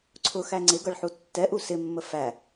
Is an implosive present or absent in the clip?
absent